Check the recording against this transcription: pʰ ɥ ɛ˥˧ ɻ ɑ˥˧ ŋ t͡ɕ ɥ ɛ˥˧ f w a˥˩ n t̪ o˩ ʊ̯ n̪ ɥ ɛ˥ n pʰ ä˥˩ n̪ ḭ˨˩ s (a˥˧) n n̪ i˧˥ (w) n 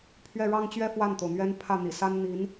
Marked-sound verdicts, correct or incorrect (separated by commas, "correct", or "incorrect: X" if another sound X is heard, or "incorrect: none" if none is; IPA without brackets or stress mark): incorrect: a˥, incorrect: none